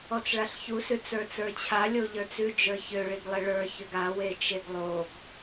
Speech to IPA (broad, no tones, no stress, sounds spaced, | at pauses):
ɔ t͡s ɭ a ɬ ç u s ʉ t͡s ə˞ t͡s ə˞ t͡ɕʰ a lʲ o ʎ ə˞ t͡s ʉ d͡ʒ ə˞ ç ø ɭ i ɡ lˠ e ɭ ə˞ ç ø ɡ a w e t͡ʃ e ɡ lˠ o ɡ